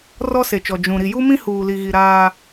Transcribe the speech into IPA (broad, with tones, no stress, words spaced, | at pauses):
rɔ˦se˨t͡ʃɔ˨ d͡ʒũ˨ ɾi˨ju˦mĩ˦ huː˨li˨ɣi˨ ɾaː˦